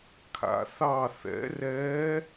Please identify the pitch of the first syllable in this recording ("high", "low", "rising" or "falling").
rising